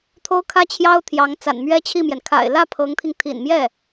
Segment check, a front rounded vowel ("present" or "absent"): absent